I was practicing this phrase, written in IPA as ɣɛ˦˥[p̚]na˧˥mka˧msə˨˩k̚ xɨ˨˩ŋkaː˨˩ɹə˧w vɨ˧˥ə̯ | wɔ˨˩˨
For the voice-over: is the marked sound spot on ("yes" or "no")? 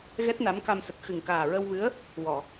no